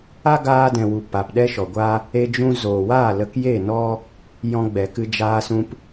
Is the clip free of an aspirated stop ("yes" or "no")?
yes